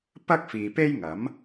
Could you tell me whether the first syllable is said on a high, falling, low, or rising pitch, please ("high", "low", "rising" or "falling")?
high